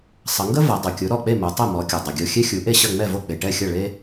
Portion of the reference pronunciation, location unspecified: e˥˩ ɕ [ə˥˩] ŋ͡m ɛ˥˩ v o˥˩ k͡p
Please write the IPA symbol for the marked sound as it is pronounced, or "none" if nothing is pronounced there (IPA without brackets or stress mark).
ɐ˥˩